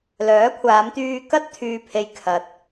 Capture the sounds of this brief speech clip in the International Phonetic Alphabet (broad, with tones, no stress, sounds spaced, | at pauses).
l œː˨˥ kʷʰ aː˨˧ m t̪ yː˧ k ɐ˥ t̚ t̪ʰ yː˥ pʰ e˥ j kʰ ɐ˧ t̚